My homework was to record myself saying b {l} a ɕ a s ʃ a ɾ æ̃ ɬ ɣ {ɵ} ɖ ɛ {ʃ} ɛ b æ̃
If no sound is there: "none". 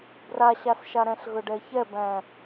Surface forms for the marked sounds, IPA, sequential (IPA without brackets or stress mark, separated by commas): r, ɵ, ç